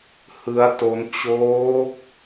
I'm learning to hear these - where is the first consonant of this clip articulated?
throat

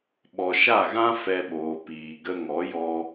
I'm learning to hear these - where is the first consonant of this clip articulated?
lips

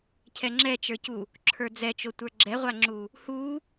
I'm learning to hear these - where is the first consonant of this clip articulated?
palate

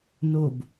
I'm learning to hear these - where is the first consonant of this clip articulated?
tongue tip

